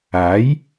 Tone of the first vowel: rising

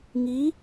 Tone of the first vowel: rising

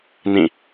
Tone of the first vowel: falling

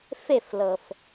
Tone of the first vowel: falling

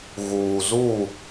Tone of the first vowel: low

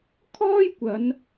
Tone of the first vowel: high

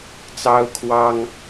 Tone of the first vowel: high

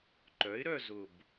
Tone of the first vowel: rising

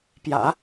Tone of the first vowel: low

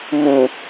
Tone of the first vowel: low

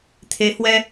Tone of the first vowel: rising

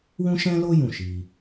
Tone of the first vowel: high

